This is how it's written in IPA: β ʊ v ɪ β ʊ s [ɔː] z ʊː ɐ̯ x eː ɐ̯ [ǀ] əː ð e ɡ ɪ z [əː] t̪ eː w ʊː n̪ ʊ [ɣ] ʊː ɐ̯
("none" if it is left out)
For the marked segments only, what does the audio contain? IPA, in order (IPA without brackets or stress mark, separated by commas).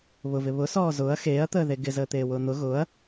ɔː, t̪, əː, ɣ